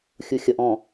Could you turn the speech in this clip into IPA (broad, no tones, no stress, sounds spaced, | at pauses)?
xʲ u xʲ ʌ ʔ ɔ̃